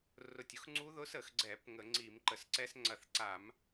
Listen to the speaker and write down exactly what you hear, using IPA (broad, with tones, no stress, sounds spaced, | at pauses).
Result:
r ʊ˧˩ tʲ ʊ˦˥ x ŋ͡ǀ u˦˥ ð ʊ˦˥ s ə˧˩˧ x ɡ͡ǀ ɛ˧˩˧ p ŋ ə˧˩˧ ŋ͡ǀ i˧˩˧ m ǃ ə˧˩˧ s ǀ ɛ˦˥ s ŋ͡ǀ ɐ˧˩ θ ǀ a˧˩˧ m